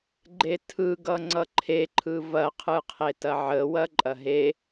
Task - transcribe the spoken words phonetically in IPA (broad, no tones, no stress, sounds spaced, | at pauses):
ɡ͡ǃ e tʰ ɯ ɡ ʌ ŋ͡ǀ ʌ ǃʰ e ǃʰ ɯ v ɐ qʰ ɯ qʰ e t ɐ ʕ ə w ɐ ǃʼ ɐ ɦ e